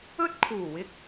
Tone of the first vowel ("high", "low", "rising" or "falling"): high